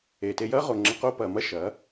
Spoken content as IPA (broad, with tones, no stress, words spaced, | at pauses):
e˨te˧jɐː˦ʁo˨ ŋ͡ǁə˧qo˦pɐː˨ mɐ˦ʃɐː˨˦